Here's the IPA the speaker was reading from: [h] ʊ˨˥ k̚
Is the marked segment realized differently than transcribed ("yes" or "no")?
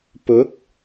yes